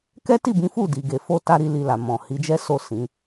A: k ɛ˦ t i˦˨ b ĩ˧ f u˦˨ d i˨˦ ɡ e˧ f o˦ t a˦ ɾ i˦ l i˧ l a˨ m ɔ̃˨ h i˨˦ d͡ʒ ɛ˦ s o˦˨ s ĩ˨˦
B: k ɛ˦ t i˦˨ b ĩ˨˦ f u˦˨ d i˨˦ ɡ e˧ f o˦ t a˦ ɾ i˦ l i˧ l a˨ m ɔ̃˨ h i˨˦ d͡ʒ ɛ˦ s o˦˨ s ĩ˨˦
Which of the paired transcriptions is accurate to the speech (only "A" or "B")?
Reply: B